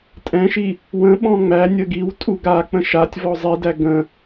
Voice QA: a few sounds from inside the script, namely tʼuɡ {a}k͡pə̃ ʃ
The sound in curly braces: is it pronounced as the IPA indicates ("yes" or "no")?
yes